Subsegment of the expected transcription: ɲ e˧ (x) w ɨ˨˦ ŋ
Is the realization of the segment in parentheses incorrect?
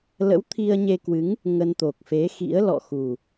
yes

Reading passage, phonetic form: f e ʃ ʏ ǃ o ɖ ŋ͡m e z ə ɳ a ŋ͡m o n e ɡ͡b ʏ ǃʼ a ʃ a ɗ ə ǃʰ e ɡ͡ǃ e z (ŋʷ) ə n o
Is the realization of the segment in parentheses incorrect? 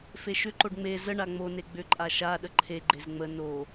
yes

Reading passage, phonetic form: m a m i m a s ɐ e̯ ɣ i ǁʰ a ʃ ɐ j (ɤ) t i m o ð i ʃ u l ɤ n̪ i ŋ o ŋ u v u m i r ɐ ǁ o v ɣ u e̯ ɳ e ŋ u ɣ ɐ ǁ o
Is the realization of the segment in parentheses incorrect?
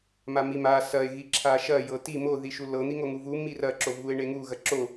no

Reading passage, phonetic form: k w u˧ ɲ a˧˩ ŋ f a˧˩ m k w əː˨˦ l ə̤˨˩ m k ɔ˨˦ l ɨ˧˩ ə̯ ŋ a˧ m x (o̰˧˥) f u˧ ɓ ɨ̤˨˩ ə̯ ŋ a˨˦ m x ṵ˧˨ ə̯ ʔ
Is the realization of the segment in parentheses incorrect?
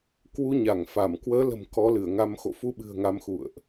yes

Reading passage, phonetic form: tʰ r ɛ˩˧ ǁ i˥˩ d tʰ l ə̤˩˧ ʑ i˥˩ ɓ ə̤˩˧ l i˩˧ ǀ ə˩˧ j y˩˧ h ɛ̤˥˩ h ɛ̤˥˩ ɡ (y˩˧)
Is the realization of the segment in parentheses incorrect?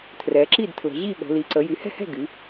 no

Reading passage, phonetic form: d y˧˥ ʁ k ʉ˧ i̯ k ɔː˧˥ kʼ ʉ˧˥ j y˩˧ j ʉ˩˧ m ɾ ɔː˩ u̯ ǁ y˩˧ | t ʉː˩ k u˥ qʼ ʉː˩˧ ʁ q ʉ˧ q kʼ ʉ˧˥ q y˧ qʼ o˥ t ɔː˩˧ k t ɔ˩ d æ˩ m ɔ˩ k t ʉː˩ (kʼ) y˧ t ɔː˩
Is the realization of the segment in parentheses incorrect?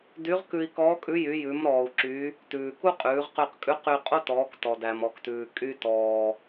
no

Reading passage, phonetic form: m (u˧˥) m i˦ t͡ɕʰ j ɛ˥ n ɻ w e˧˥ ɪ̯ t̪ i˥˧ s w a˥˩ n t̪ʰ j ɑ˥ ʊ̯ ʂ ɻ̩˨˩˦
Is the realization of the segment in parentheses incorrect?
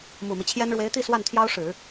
yes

